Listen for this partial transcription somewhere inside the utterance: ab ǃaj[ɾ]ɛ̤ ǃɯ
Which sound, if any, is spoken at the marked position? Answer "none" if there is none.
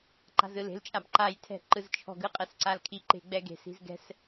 tʰ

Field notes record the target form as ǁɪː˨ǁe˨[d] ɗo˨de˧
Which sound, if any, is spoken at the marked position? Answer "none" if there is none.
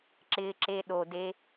none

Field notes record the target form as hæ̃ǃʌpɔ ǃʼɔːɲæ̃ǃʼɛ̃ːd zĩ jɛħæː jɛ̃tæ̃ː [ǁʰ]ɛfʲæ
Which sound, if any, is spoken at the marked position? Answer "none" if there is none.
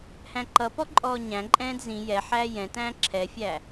ǁʰ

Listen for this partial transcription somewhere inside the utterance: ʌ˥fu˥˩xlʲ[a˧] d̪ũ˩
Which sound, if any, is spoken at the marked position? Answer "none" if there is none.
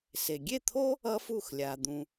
a˩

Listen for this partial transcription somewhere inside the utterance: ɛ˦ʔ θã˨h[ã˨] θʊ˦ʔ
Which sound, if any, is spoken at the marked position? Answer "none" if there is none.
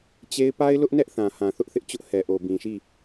ã˨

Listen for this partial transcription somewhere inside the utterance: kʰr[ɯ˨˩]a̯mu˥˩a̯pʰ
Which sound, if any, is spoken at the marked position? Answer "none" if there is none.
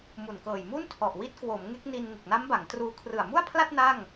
ɯ˨˩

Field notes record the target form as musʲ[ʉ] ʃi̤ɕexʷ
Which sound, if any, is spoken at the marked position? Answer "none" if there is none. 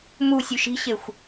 ʉ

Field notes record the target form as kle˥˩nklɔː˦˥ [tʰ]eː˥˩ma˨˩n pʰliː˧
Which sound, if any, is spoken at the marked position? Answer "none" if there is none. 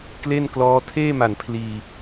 tʰ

